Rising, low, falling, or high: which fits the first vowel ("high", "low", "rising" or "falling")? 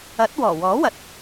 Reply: rising